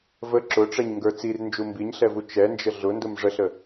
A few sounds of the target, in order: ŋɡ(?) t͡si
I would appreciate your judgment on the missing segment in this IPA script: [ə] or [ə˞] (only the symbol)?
ə˞